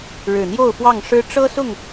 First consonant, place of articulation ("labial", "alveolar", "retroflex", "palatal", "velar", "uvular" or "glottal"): retroflex